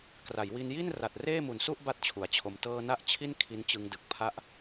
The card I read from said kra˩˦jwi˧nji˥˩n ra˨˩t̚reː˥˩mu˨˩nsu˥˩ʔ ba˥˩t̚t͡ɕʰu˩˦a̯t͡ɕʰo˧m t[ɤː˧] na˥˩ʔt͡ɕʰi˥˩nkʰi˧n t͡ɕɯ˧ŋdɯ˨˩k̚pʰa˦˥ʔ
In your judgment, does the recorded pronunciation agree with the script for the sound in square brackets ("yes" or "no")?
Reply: yes